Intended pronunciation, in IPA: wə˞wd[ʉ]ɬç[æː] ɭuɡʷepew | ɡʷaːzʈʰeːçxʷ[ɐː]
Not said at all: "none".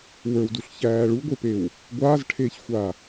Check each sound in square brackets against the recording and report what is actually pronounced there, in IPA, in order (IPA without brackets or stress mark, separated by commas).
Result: u, æː, aː